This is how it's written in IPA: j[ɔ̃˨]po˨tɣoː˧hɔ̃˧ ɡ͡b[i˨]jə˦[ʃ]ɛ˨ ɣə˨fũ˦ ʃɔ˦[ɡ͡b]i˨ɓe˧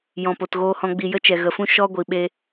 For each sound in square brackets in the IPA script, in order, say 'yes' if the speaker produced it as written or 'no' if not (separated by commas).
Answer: yes, yes, no, no